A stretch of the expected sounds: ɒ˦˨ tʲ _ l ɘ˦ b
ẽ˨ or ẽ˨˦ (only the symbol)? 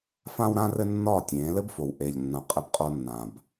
ẽ˨˦